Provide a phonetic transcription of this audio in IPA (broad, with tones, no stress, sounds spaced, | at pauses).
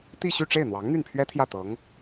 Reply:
t̪ i˥˧ ɕ y˥˧ ʈ͡ʂ e˥˩ ɪ̯ n̪ w ɑ˧˥ ŋ n̪ y˥˩ n pʰ ɥ ɛ˥ t̪ʰ j ä˥˩ t̪ ɤ˧˥ ŋ